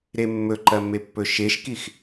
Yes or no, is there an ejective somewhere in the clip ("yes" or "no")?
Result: no